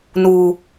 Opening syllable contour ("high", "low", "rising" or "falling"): low